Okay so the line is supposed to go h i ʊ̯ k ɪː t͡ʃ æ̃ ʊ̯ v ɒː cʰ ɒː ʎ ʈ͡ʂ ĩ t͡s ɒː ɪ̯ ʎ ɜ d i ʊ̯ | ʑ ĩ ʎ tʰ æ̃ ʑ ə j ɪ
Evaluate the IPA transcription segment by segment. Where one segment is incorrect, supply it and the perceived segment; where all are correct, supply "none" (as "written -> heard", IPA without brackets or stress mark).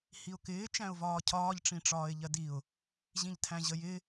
t͡s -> ʈ͡ʂ